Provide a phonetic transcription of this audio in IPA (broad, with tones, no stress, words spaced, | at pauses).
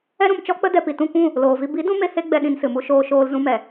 ɛ˦ɾũ˧m t͡ʃɔ˦k͡pə˦ dɛ˧pi˨ tũ˦˨kʷũ˦˨ | loː˨vi˧ bi˨˦dũ˧me˧ he˦ɡ͡bɛ˧ ɗĩ˧nsɨ˨mu˦ʃoː˧ ʃoː˧l zũ˦mɛ˨